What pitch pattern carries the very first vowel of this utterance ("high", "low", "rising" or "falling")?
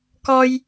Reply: high